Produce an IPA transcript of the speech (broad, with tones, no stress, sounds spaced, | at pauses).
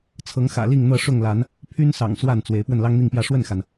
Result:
t͡sʰ ɤ˨˦ ŋ x ä̰˨˩ l i˥˨ ŋ n̪ ɤ˥˨ ʂ ʊ˥˨ ŋ l a˨˦ n | pʰ y˦ n s ɑ̰˨˩ ŋ s w a˥˨ n t͡s w e˨˦ ɪ̯ p w ə˥˨ n l ɑ˦ ŋ n̪ i˥˨ ŋ p j ä˥˨ ʂ w ə˥˨ n x a˩ n